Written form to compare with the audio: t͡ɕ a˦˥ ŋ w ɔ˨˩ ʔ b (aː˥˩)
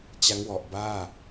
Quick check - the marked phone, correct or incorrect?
correct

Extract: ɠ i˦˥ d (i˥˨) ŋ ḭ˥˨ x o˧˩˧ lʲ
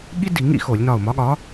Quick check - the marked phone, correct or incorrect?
incorrect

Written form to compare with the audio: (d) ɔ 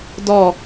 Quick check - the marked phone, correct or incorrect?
correct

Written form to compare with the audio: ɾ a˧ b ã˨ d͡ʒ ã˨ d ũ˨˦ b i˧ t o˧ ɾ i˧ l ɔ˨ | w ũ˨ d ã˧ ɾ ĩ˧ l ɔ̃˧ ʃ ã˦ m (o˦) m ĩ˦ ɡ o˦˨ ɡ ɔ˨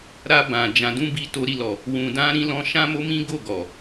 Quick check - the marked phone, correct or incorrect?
correct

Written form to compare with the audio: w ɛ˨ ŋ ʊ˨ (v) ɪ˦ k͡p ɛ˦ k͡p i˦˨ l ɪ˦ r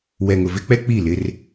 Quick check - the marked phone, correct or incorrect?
correct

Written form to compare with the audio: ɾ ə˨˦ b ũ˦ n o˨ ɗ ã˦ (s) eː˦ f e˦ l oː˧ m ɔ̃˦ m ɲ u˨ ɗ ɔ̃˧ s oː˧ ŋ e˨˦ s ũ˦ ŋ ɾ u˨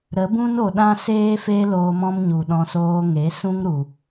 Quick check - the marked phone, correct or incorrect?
correct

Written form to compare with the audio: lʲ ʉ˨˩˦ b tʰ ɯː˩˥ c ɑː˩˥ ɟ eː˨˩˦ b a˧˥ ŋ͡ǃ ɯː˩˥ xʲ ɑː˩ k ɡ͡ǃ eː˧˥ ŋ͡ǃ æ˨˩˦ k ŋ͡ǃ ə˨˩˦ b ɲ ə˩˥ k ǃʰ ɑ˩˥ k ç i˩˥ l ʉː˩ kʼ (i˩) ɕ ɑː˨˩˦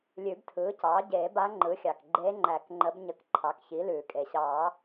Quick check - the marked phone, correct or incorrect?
incorrect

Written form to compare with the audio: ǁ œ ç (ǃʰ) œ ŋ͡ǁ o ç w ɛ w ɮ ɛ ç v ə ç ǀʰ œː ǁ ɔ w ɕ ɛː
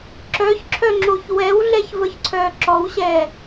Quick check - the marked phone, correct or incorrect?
incorrect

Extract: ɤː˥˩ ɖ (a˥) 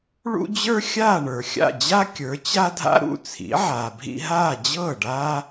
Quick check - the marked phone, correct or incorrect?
incorrect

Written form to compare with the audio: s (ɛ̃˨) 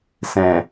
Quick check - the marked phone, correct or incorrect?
correct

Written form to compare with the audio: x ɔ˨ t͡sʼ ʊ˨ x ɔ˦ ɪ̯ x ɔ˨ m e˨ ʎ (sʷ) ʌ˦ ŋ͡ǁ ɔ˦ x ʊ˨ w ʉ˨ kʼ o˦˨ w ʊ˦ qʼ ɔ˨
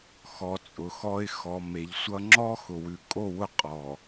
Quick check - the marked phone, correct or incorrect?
correct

